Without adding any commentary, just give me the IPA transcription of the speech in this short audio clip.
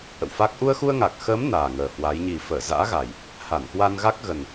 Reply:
ʔ ə̰˧˨ w f a˦˥ k̚ ʔ u˧ ə̯ x u˧ ə̯ ŋ a˨˩ k̚ x əː˨˦ m n aː˨˩ ŋ əː˨˩ h w a˨˦ j ɲ i˨˩ f əː˧˩ z a̰ː˧˥ ɣ a˨˩ j | h a˧˩ n k w a˧ n ɣ a˦˥ k̚ ɣ ə˨˩ n

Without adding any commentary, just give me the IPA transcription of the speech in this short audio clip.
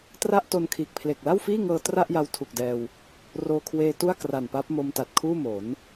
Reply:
t r a˥˩ ʔ t o˧ n kʰ iː˨˩ k̚ pʰ l e˨˩ k̚ l a˥˩ w f iː˥˩ ŋ ɤː˧ t r a˥˩ ʔ j a˧ w tʰ u˨˩ k̚ d ɛː˧ w | r oː˧ kʰ w eː˧ t u˥˩ a̯ k r a˨˩ n p a˦˥ p̚ m o˧ m t a˨˩ t̚ kʰ uː˥˩ m o˩˦ n

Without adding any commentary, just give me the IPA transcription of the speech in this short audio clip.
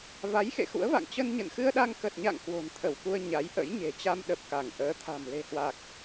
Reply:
v a˨˦ j x ḛ˧˨ x ṵ˧˥ ə̯ v a̰˧˨ ŋ t͡ɕ ə˧ n ɲ ə̰˧˨ n x ɨ˧ ə̯ ɗ a˧ ŋ k ə˨˩ t̚ ɲ a̰˧˨ ŋ k w o̤˨˩ n t̪ʰ ə˧˩ w k u˧ ə̯ ɲ a˨˦ j ʔ ə̰˧˥ j ɲ e̤˨˩ t͡ɕ a˧ m ɗ ə˨˩ p̚ k a˧˩ ŋ ʔ əː˨˦ t̪ʰ a̤˨˩ m l e̤˨˩ h w a˨˩ k̚

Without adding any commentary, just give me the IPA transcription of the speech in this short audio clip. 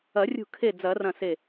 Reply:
ɐ˨˩˦ rʲ ṳ˧˩ kʰ e˧˩ d͡z ɐ˨˩˦ r ɐ̃˧˩ s e˧˩

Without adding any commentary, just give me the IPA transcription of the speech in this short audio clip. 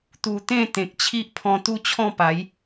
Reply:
t̪ u˧ t̪ ẽ˥˧ t̪ ẽ˨ k̚ t͡ɕʰ i˦ ʔ pʰ ɔ̃˧ t̪ u˥˧ t͡ɕʰ ɔ̃˥˧ p a˨˦ j

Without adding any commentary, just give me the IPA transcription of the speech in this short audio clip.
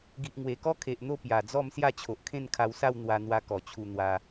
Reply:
ɡ i˨ ʔ ŋ w e˨˩ k ɔ˦ kʰ e˨ ʔ n̪ o˥˧ p j a˨˩ d͡z ɔ˥˧ m s j a˥˧ t͡ɕʰ o˨ ʔ kʰ ẽ˥˧ n kʰ a˧ w s a˥˧ w n̪ w a˧ n̪ w a˧ k ɔ˨˩ t͡ɕʰ u˧ n̪ w a˧

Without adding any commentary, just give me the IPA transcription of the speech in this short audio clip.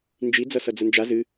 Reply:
n d͡ʒ i d͡z ʌ s ʌ d͡z ə n d͡ʒ a z ɨ

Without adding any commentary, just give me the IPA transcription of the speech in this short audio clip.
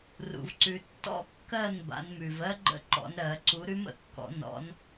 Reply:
r ṵ˨ v ǀ ʉ˨ tː ɔ̰˦˥ kː ɜ˥˨ n b a̰˨˦ n m ʉ˨ v ɜ˦˥ ɡ͡ǃ ə̰˦˥ ǃ ɔ̰˨˦ n ɾ ɜ˨˩˦ ǀ u˨˦ ɾ ʉ˦˥ m ə̰˨˩˦ kː ɔ̰˨˩˦ n ɔ̰˨˦ n

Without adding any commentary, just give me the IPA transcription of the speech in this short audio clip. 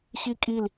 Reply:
ɕ i kʼ i l

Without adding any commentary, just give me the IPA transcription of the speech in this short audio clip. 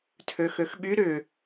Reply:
tʰ ø x ø x ɓ y ɾ ʏ

